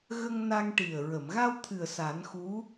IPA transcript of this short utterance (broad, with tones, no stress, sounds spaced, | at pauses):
ɣ ə˧ ŋ n a˧ ŋ ʈ i˨˩ ə̯ ɹ ə˨˩˨ m ɣ a˧ w t̪ʰ ɨ˨˩ ə̯ s a˨˩˦ n x u˧˥